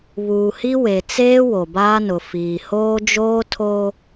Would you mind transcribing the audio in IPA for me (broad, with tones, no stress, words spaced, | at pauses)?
βuː˨hi˦we˨ t͡seː˦ wo˨baː˦nʊ˨ fiː˨hoː˦ d͡ʒoː˦tʰoː˦